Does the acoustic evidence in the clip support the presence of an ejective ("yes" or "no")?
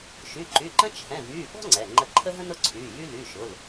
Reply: no